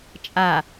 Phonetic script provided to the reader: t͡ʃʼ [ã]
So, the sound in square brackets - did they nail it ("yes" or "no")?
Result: no